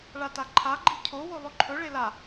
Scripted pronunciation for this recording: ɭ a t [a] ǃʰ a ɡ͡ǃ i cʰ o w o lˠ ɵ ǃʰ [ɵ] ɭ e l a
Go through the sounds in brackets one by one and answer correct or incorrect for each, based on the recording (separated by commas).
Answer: correct, correct